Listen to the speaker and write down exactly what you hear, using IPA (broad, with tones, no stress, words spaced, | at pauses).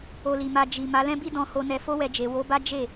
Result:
o˧li˨ma˧ d͡ʒi˨ ma˨˦lɛ̃˦bi˦ dɔ̃˧ho˧nɛ˧ fo˦wɛ˧d͡ʒe˨ wo˨˦ba˦ d͡ʒe˦˨